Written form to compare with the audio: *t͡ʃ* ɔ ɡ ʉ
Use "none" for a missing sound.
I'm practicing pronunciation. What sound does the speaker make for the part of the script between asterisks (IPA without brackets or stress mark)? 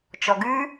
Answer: t͡ʃ